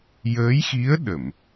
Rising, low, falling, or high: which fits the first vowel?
rising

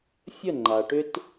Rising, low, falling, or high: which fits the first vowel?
falling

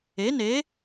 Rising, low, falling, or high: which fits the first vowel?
rising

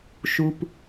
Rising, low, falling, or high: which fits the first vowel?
low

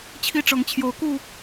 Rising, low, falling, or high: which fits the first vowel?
high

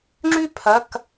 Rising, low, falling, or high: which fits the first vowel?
falling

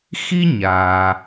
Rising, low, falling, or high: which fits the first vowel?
high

